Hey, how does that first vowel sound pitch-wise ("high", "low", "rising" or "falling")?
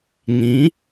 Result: rising